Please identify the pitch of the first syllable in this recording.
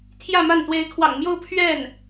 falling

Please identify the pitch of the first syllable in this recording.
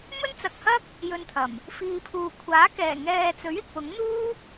high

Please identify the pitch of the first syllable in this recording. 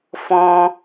high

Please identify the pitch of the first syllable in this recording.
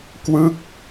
falling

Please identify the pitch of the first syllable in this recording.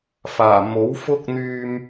low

